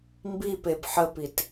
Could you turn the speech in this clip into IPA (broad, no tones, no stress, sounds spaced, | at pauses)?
m b i p e b ħ ə p i t